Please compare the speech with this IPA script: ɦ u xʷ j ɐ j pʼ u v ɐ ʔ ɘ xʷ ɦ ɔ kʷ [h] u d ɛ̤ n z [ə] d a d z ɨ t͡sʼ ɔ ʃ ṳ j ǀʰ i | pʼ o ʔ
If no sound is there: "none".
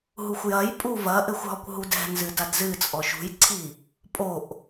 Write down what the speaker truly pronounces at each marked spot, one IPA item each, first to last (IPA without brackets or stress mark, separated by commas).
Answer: ɦ, ɨ